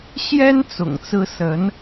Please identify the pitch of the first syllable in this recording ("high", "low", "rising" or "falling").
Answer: high